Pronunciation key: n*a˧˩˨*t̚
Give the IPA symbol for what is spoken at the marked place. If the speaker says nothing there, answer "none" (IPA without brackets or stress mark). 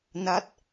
a˦˥